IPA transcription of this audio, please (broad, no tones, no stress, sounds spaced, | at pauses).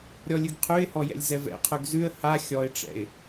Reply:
ɾʲ ɔ lʲ ʉ ɡ qʰ ʉ ɪ̯ h ɔ j ɛ̰ lʲ z ɛ v ɛ̰ qʰ ʉ ɡ z ʉ ə̯ h a xʲ ɔ ɪ̯ ʈ͡ʂ ɛ̰ ɪ̯